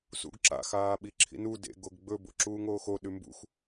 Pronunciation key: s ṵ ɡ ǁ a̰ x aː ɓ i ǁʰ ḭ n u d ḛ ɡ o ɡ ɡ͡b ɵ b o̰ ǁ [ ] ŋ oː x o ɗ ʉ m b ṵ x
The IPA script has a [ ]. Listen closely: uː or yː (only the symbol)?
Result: uː